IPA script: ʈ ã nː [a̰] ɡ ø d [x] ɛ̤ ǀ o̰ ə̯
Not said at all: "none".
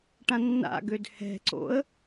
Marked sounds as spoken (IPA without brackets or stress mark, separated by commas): a̰, h